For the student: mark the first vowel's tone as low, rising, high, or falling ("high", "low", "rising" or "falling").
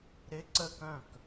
rising